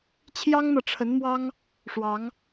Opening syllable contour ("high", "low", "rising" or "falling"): high